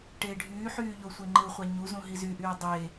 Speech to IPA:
ʈ eː ɖʱ yː ħ yː ʎ o sʷ e ŋ͡ǃ ɯ χʷ æ ɲ u z ũ ɦ i z y ʔ yː dˤ eː

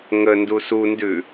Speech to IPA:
ŋ ə n d u s u n d ʉ

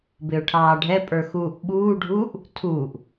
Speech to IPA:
b ɪ ʊ̯ ʈʰ ɑː ɖʱ ɛ pʼ ə˞ x uː ʔ ɓ uː ɖʱ uː ʔ | tʰ uː ʔ

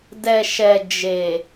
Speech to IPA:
d ɛ˨ ʃ ɛ˨ d͡ʒ e˨

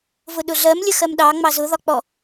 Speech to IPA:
v ʊ ɗ ʊ ɮ ɜ m lʲ ə x ɜ m ɗ ɑ ŋ͡m ɑ z ʊ ð ɒ k͡p ɔ

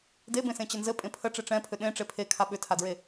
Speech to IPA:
d e b ẽ s ẽ t͡ɕ ə n z ɘ pʼ ẽ pʰ ə ʈ͡ʂ e ʈ͡ʂ ɛ̃ pʰ ʏ ɗ ẽ ʈ͡ʂ e pʰ e kʰ a ɓ ʏ tʰ a d ɹ e

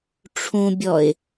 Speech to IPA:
ʈ͡ʂʰ ũ bʲ ɔ ɪ̯

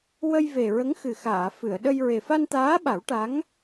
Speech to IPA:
w ə˧ j v e˨˩ ɹ ə˧˥ ŋ x ɨ˨˩ x aː˨˩˨ f ɨ˨˩˨ ə̯ ɗ ə˧ j ɹ e˨˩ f a˧ n t̪ aː˧˥ ɓ a˨˩˦ w ʈ a˧˥ ŋ

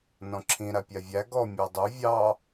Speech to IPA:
n ɔ̃ ǁʰ ĩ ɾ a pʲ a vʲ æ ɡ ɔ mʲ ɯ dˤ u vʲ ɑ

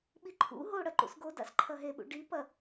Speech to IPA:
ɓ i ǃʰ ṵ ɦ o ɽ ɐ ǃ ṵ s ɡ o d a̰ s ǃʰ ɐ ɦ e ɓ ṵ ɖ i p ɐ

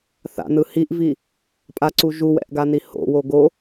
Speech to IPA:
θ a̰ n ɯ h i ʔ v i | pʼ a ǀ u ʒ u w ɛ̰ ʔ ɡ a n i h o̰ w o ɡ o

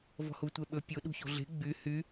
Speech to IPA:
v ɔ̤ h u tʷ ɛ ɓ ɵ pʲ o ɗ ṳ ç o̤ ɮ e̤ ɡ͡b y h y

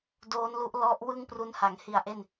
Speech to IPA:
d oː˦˥ n l u˦˥ ʔ l ɔ˦˥ ʔ w ɯ˥˩ ŋ p r u˦˥ n h a˩˦ ŋ h i˧ a̯ ʔ e˥˩ n

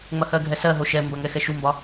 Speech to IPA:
ŋ͡m ɐ h ɜ ɡʱ ɛ s ɜ ɦ o ʃ ɛ m b ɐ ŋ ɛ x ɛ ʃ u m b ɒ

